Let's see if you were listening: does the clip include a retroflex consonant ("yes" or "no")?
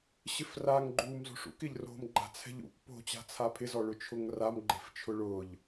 yes